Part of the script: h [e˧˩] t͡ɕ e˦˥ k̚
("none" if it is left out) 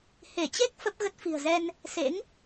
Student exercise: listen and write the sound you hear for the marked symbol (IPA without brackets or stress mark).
e˧˩